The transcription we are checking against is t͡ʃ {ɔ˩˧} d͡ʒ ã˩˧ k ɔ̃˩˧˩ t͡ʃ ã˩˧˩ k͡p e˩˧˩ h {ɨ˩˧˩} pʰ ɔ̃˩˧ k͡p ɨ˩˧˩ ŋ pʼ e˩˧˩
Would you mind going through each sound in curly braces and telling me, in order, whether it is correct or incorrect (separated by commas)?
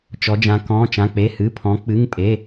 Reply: correct, correct